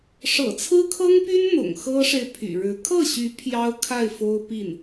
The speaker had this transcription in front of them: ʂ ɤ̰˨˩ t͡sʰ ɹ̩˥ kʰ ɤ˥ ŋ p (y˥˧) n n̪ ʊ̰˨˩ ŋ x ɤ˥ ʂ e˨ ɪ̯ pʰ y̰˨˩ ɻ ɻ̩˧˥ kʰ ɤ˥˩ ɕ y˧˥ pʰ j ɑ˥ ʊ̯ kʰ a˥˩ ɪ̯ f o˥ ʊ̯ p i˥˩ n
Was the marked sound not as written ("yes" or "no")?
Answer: yes